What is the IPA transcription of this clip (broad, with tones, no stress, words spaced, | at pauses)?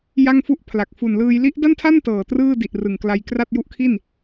ja˥˩ŋfu˥˩ʔpʰla˨˩k̚ fu˨˩nlɯː˧j li˦˥ʔda˥˩ntʰa˥˩n tɤː˨˩trɯː˥˩ di˨˩ʔrɯ˨˩ŋkla˧jkra˥˩t̚ ju˦˥ʔkʰi˥˩n